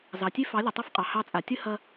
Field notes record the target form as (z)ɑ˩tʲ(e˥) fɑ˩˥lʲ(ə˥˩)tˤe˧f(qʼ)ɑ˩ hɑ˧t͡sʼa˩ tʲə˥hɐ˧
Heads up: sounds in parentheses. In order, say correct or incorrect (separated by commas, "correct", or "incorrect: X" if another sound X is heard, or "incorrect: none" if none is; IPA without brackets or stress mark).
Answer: correct, correct, incorrect: ə˩, correct